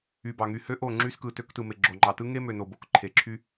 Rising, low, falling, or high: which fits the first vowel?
low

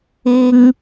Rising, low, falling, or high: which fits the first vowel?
high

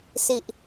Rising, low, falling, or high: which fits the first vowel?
low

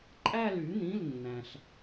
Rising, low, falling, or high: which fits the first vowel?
falling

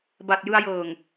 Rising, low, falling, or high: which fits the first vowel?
low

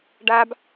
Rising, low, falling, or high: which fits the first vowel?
high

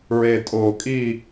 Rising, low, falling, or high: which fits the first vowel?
low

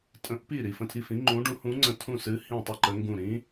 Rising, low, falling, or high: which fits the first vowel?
rising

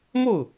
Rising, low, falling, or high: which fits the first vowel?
falling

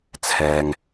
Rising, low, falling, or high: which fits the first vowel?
low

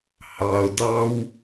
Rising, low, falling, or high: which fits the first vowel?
low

